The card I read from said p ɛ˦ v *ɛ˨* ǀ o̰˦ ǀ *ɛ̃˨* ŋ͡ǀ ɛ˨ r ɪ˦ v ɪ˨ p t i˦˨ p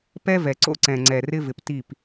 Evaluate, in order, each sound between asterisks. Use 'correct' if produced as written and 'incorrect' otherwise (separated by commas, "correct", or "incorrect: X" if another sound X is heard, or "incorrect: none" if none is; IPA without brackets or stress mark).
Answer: correct, correct